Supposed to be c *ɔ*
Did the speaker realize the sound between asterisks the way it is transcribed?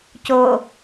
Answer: no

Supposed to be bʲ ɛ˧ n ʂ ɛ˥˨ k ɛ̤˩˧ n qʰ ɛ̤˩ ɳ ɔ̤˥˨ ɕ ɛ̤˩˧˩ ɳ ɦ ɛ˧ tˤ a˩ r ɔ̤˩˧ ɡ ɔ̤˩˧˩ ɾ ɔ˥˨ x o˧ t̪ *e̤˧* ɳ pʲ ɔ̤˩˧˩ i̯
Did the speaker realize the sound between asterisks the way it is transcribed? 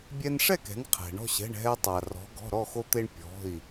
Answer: no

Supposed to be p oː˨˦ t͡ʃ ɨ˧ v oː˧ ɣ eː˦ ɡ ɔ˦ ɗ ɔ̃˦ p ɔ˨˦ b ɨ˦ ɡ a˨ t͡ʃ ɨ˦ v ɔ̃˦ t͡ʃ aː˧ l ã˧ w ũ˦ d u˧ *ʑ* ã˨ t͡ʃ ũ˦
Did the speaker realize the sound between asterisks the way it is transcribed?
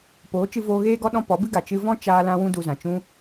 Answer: no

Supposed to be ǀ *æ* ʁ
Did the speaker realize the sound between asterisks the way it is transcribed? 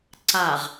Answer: no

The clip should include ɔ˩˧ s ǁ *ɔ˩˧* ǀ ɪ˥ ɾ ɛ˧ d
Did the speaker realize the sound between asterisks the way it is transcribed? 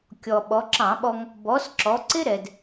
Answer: yes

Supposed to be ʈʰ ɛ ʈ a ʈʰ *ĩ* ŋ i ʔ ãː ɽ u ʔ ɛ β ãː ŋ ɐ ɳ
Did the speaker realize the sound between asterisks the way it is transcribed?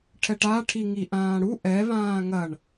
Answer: no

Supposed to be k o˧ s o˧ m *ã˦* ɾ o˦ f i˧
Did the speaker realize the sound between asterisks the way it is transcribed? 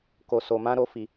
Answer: yes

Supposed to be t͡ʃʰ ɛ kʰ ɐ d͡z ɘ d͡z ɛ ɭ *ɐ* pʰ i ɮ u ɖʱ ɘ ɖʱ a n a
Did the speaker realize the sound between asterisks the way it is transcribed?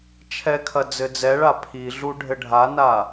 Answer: no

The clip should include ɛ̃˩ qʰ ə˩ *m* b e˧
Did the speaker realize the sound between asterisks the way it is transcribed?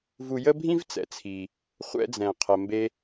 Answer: yes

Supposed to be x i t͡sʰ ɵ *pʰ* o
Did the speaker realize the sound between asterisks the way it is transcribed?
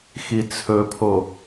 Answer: yes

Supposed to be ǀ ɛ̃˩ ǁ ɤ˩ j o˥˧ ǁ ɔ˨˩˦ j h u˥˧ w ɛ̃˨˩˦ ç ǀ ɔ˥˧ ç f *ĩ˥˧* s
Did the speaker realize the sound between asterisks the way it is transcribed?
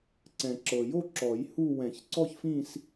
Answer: yes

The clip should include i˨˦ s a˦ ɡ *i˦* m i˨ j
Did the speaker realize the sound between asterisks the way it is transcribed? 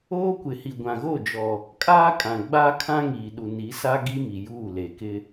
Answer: yes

